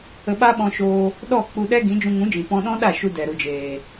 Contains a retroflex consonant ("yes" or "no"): no